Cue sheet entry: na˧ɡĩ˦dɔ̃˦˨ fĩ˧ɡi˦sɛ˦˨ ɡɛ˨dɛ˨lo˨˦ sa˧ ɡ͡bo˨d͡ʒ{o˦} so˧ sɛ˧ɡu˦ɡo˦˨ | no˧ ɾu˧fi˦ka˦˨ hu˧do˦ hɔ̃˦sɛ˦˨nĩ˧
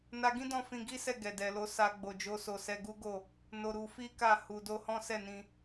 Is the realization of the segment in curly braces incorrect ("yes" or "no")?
yes